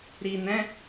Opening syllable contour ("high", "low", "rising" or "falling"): low